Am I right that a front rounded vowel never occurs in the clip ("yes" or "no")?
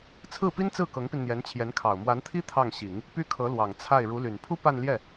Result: no